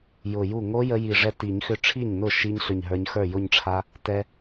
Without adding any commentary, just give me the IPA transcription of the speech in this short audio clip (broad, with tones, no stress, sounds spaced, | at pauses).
j ʊ˧˩ j u˥˩ ŋ o˦˥ j ə˦˥ j i˧˩ ʐ ɛ˦˥ t i˨˩˦ ɲ x ʏ˦˥ ʈ͡ʂʰ i˥˩ ɲ n ʊ˥˩ ʃ i˧ ɲ ɬ ʏ˧˩ ɲ ɦ ə˞˧ ɲ x ə˞˥˩ j ʊ˥˧ ɲ ʈ͡ʂʰ a˦˥ | t ɛ˧